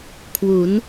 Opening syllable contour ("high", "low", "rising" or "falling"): rising